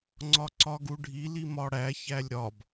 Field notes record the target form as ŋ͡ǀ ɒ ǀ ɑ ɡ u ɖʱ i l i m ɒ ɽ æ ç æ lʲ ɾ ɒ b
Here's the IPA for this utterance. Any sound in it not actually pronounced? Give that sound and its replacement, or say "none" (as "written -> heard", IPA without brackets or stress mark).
ɑ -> ɒ